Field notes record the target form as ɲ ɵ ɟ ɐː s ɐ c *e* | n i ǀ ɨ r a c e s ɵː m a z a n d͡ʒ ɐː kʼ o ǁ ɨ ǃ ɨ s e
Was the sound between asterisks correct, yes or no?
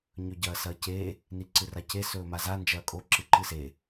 yes